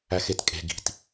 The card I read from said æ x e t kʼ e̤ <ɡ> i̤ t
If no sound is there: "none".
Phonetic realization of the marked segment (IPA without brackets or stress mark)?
ɡ